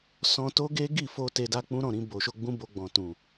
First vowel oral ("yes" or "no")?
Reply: no